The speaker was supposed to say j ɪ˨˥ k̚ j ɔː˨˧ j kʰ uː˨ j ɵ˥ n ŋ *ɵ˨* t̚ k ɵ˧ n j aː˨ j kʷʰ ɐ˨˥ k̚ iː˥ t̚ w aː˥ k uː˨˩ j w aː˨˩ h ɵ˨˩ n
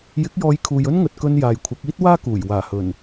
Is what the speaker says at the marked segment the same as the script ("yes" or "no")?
no